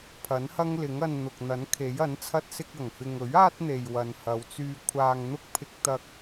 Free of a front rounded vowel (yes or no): no